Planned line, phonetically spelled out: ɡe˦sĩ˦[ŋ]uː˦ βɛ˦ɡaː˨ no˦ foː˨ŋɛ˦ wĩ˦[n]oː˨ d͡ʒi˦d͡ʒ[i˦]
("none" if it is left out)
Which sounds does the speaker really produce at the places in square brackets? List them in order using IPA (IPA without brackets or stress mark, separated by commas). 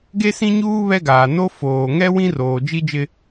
ɲ, r, ɪ˦